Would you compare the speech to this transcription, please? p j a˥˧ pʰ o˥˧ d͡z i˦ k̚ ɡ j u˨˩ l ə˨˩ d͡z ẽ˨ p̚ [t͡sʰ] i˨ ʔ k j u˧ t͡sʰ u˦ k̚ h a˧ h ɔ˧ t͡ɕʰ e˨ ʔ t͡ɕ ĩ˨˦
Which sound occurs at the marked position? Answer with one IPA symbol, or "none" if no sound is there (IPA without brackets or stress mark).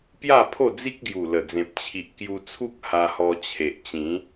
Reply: t͡ɕʰ